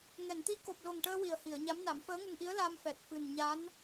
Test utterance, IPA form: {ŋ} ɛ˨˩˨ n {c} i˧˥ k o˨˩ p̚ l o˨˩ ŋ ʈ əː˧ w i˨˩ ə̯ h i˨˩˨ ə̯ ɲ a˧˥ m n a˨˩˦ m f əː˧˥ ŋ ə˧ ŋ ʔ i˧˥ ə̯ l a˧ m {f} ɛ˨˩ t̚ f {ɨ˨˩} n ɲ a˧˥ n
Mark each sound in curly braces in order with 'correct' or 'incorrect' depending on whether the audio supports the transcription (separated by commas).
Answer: correct, incorrect, correct, correct